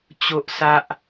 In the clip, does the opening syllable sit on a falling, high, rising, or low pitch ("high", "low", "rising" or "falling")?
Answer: high